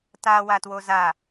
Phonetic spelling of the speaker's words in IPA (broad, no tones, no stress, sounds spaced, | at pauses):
t a w a t w o z a